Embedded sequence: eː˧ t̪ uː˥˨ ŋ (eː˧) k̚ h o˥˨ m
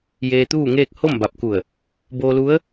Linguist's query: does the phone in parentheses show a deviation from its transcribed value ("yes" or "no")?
yes